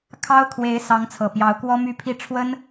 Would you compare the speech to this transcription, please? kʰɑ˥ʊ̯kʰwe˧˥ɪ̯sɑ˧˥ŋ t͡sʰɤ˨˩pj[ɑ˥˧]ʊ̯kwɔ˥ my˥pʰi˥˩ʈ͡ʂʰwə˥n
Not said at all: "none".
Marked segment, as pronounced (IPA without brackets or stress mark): ɑ˧˥